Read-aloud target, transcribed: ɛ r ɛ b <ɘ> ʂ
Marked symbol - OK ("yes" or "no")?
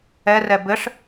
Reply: yes